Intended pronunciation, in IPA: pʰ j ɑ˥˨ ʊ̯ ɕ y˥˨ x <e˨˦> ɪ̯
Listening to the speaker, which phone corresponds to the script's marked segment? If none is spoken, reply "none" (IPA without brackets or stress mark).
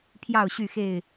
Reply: e˥˨